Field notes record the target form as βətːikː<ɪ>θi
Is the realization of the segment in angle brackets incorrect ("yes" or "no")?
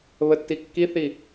yes